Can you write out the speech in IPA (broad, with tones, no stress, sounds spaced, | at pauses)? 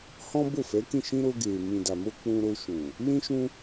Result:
h ɔ̃˦ b o˦˨ f ɛ˨˦ k ĩ˦˨ ʃ ĩ˧ ɾ o˧ ɡ e˨ m ĩ˨ d a˨ m o˧ k͡p ũ˧ ɾ o˧ ʃ ũ˨ | l ĩ˦ ʃ ũ˦